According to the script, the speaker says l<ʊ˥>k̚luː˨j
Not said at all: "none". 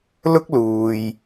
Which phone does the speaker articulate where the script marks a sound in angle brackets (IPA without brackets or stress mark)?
ʊ˥